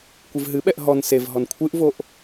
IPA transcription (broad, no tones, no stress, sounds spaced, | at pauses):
kʷ ɨ v ɦ ɨ ɓ ɛ ʔ ɦ ɔ n s e v ɦ ɔ n kʷʰ ɨ ʔ v o ʔ